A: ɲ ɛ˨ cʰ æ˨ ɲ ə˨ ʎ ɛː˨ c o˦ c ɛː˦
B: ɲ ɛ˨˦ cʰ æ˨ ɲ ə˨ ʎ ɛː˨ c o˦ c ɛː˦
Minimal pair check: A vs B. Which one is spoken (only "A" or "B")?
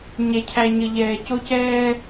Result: A